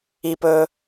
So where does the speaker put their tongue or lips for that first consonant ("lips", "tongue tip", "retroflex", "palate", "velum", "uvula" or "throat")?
lips